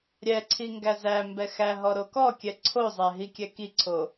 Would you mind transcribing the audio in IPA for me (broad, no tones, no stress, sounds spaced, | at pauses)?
ɾʲ ɛ ǀʰ i ŋ ɡ æ z æ m b ɛ x æ ɦ ɔ ɾ o k ɔ kʲ ɛ ǀʰ o zˤ æ ɦ i kʲ ɛ k i ǀʰ o